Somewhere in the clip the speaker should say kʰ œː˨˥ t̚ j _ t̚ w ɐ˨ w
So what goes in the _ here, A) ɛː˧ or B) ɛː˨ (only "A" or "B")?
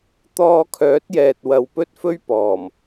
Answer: B